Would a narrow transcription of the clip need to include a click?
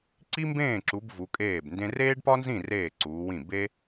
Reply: yes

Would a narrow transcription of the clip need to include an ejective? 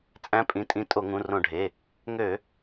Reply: yes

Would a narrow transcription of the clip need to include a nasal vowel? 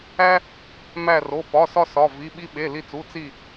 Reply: no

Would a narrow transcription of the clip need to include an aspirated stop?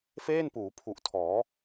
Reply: yes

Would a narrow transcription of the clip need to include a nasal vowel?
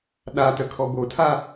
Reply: no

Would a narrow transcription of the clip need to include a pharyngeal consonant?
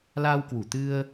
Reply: no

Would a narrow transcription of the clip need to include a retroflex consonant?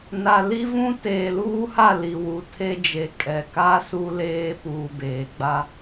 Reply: no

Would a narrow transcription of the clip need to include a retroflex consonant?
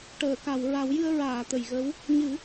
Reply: yes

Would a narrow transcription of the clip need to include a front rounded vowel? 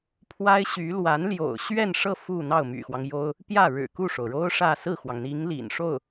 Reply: yes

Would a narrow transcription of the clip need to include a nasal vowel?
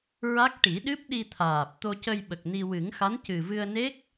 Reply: no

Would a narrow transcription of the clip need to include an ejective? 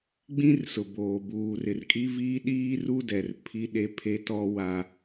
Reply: yes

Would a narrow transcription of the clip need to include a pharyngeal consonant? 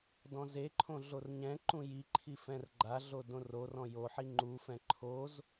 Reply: yes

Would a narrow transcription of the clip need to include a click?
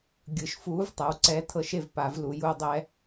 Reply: yes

